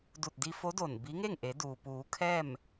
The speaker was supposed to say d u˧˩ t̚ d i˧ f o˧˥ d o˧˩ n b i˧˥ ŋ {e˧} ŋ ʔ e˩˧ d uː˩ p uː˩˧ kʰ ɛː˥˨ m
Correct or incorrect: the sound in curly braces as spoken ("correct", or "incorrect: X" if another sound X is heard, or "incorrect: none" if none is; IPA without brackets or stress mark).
incorrect: e˥˨